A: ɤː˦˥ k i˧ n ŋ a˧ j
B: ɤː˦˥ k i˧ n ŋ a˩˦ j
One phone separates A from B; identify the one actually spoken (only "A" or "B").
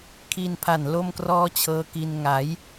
B